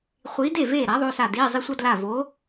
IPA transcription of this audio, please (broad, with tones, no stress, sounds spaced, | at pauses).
χʷ iː˨˥ d e˥˩ v eː˥˩ ɾ a˨˥ ðˤ o˩˧˩ s a˧˩ d iː˩˧˩ zˤ i˧ sʷ ʌ˧ d l a˧˩ v oː˨˥